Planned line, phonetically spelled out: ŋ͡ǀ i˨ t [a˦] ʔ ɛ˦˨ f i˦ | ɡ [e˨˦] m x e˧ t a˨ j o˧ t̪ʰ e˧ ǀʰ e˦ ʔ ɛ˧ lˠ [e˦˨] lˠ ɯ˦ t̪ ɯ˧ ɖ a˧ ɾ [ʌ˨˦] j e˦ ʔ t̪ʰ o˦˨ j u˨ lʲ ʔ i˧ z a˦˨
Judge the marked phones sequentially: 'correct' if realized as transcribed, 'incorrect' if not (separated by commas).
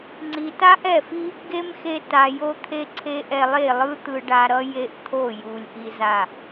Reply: correct, incorrect, correct, incorrect